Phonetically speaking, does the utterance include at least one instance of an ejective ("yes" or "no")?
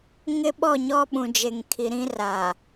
no